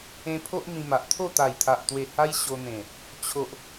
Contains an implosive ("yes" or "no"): no